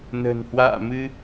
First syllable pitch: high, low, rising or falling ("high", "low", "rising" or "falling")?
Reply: low